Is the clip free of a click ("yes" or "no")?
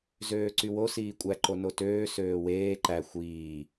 no